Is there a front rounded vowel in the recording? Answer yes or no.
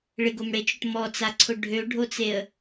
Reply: yes